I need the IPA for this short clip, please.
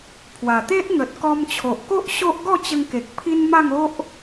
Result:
pʰ w a˨˩ t̪ e˦ ʔ ŋ ə˨ t̚ k ɔ˧ m t͡ɕʰ o˨ ʔ k o˦ ʔ ɕ o˦ ʔ ɡ ɔ˥˧ t͡ɕ ə˧ ŋ k e˨ k̚ pʰ i˦ n m a˥˧ ŋ o˦ ʔ

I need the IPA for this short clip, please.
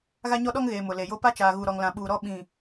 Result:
ɣ a˦ ɲ ɔ˦ ɗ ɔ˦ ŋ ɣ eː˨ m ʊ˨ l e˨ j o˦ p a˦ t͡ʃ aː˨ ɣ u˨ ɾ ɔ˨ ŋ l ã˨ ɓ uː˨ ɾ ɔ˦˨ ɓ ĩ˨

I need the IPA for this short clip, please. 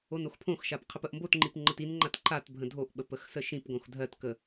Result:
o n o x pʰ õ x ʃ a p qʰ ə p ə ʔ m b o t ŋ͡ǃ i p ŋ͡ǃ ə t i n ŋ͡ǃ a t ǃ a t bʱ ə̃ dʱ o ʔ ɓ ə p ə x s ə ʃ ĩ p ɡ õ x dʱ ɜ t k ə

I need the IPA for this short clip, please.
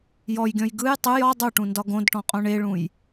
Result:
j ɔ j ɡʲ ɔ̃ j ɡ ɯ j tˤ ɯ j ɒ dˤ u ʈ ũ n d ɒ ɡ õ d ʈ ɔ̃ qʼ õ ɳ e ɭ ũ j

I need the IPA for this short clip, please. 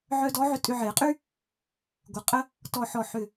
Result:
ʕ œ˧ d ɔ˨˥ ʕ ʏ˧ tʼ ʏ˧ ʕ e˨˩˦ qʼ y˥ | ɡʷ ə˧˩ qʼ ə˥ | t ɔ˧˩ ħ ɔ˧˩ ħ ʏ˧˩

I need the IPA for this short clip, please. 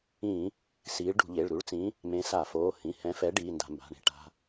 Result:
ĩ˧˩˧ | s iː˨˥ ɭ ɖ ṳ˧˩˧ ʎ e˩˧˩ ɭ ɾ u˨˥ ɭ t͡s ĩ˨˥ | m ẽ˨˥ s a˧˩˧ f oː˩˧˩ h ĩ˩˧˩ h ɛ̃˨˥ f ɛ˨˥ ɖ iː˩˧˩ n d a̤˧˩˧ m b a̤˩˧˩ ɳ e̤˨˥ ʈ a̤˩˧˩

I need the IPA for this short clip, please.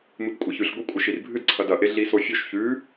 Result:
m ɨ p kʷʼ ɐ ç ʉ ɬ ɡʷ ɨ kʷʼ ɐ ʃ i r bʱ ɨ d ǀʰ ɐ d ɐ ʔ e ɮ i s o fʲ ɵ ʃ ç ʉ

